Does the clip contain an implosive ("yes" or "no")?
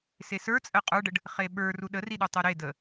yes